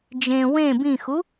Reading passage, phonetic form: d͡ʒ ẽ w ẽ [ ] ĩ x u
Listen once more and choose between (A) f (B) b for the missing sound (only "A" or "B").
B